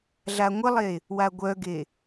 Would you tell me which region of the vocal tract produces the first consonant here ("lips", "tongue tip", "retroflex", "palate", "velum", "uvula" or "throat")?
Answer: tongue tip